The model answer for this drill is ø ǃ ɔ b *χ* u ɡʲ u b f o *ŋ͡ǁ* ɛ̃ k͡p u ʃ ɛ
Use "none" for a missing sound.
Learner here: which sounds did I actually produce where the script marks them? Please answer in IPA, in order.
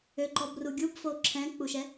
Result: r, ǁʰ

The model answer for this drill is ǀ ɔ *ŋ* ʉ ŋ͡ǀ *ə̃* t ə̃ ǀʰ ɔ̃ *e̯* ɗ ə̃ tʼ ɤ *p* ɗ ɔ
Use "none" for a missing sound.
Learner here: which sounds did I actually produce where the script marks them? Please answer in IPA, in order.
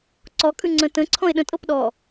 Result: kʼ, ə̃, e̯, p

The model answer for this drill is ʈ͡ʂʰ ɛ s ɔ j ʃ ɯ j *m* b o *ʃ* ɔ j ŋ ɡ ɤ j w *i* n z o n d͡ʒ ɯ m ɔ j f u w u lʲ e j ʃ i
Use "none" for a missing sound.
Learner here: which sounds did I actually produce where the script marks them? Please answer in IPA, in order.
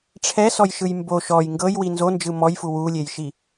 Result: m, ʃ, i

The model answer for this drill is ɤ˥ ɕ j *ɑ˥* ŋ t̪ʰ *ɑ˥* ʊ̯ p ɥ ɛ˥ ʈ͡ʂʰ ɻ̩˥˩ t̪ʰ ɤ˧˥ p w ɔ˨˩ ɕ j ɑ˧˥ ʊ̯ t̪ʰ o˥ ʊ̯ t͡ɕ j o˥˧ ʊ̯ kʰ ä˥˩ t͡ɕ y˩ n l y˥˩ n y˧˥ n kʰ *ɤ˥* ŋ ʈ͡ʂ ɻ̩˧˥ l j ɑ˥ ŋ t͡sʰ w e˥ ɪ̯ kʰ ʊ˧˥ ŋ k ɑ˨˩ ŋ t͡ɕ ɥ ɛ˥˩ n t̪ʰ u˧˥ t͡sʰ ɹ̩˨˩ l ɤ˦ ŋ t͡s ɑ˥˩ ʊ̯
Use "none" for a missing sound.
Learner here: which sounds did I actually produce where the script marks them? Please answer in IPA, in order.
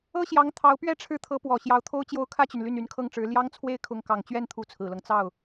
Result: ɑ˧˥, ɑ˧˥, ɤ˥

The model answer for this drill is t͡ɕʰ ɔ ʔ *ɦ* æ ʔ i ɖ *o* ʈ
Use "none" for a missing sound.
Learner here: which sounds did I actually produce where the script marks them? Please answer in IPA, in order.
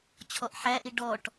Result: ħ, ɔ

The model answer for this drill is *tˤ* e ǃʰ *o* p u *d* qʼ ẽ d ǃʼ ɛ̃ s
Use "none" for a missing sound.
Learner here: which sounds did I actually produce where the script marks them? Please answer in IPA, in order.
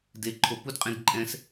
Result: d, o, d

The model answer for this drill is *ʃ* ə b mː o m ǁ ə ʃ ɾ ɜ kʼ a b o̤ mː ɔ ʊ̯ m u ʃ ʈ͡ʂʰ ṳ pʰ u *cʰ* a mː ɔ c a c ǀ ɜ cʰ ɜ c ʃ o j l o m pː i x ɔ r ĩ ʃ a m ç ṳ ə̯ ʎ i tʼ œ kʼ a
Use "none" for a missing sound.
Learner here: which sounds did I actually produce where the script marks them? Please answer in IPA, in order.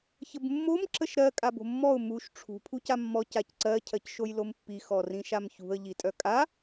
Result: ç, c

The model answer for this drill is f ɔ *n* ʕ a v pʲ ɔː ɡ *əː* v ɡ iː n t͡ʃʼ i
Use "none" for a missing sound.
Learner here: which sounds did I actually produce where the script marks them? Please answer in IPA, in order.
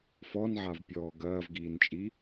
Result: n, ɐː

